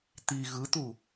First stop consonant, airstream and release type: plain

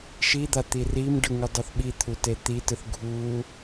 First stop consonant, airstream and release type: plain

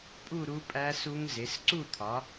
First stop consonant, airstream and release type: ejective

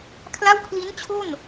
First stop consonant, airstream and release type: aspirated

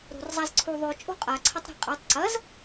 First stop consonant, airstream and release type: click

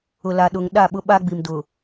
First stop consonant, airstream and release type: implosive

